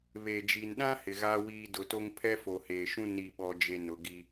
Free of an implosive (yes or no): no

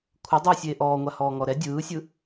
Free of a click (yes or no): yes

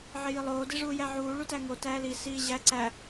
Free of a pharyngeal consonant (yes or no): no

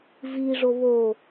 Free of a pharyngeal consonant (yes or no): yes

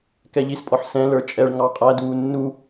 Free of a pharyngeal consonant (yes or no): no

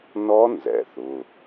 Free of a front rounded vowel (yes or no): yes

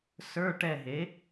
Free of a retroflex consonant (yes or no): no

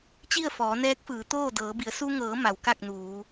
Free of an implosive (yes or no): yes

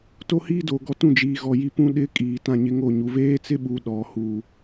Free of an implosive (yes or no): no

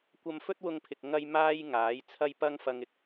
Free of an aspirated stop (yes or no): no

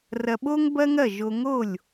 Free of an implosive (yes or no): no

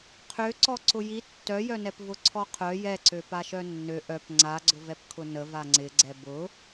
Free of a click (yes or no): no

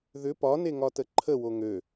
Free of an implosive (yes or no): yes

